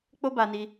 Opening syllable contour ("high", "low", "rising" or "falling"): high